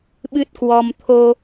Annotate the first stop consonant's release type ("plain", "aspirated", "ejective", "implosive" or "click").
implosive